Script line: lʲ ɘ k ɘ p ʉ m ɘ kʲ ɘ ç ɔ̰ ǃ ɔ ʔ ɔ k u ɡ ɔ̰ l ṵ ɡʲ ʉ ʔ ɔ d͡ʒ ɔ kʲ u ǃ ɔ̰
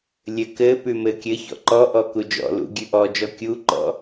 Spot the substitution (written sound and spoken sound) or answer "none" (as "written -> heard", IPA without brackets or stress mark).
ɡ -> d͡ʒ